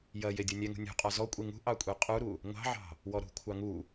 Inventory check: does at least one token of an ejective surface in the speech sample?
yes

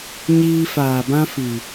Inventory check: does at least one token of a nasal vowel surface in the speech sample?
yes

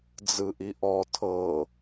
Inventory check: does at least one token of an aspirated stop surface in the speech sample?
yes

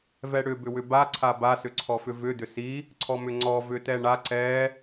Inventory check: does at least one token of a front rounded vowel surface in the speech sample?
yes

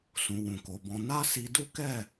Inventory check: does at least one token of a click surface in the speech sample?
no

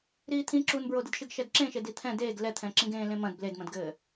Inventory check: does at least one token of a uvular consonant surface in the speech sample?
no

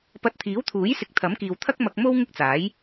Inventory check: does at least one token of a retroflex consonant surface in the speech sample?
no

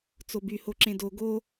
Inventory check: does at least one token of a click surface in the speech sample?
yes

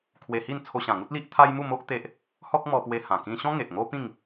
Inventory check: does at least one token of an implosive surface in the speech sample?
no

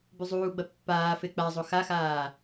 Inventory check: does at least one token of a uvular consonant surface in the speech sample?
no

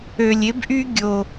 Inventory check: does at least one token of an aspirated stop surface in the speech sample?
no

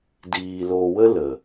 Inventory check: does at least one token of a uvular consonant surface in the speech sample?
no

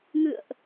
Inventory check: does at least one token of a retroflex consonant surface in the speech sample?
no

